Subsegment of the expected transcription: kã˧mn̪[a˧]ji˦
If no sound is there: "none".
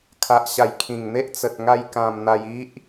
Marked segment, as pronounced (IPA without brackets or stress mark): a˧